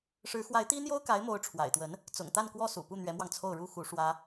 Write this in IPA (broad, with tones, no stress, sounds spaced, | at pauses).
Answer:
ʂ ɻ̩˧˥ x w a˧˥ ɪ̯ t̪ i˥ n̪ j o˥ ʊ̯ k a˧˥ ɪ̯ m o˧˥ ʊ̯ ʈ͡ʂʰ w a̰˨˩ ɪ̯ t̪ w ə˧˥ n | t͡s ʊ̰˨˩ ŋ t̪ a˥˩ n k w ɔ˥ s ṵ˨˩ p u˥˩ n̪ ɥ ɛ˧˥ m w ɑ˧ ŋ t͡sʰ o˥˩ ʊ̯ ɻ u˥ x u˧˥ ʂ w ä˥